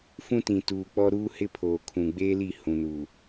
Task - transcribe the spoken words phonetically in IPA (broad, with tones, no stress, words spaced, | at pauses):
fũ˦tĩ˨tuː˨k͡pɔ˦ ɾuː˦hɪ˦pʰoː˨kʰũ˨ ɡ͡beː˦li˦˨ hũ˨nuː˨